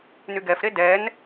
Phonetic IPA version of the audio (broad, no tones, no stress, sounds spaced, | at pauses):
n y ɡ ɛ f ɾ e d ɛ n